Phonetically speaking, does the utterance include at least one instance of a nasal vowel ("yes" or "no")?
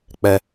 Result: no